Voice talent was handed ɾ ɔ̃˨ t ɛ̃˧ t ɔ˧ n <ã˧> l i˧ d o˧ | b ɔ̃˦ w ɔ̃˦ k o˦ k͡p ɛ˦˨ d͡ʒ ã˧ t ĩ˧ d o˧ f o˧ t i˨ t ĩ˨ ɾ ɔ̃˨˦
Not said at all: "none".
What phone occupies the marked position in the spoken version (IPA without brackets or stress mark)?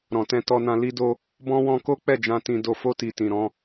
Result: ã˧